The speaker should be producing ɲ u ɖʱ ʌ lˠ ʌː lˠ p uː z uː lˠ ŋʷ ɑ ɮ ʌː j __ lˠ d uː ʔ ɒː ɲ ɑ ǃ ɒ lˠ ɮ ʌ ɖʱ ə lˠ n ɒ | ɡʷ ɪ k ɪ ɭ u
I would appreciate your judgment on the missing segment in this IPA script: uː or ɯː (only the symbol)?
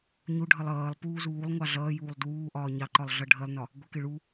uː